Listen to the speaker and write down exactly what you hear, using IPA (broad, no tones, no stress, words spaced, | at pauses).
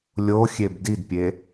lʲoxʲeb didpʲe